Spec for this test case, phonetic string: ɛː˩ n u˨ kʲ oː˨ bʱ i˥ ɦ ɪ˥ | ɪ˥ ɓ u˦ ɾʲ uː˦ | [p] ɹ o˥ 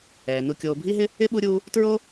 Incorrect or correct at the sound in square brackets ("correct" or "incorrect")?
incorrect